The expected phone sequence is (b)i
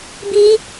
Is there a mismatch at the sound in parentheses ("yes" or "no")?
no